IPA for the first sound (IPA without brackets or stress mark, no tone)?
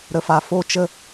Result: ɾ